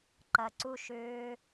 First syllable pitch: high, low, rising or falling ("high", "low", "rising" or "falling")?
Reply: low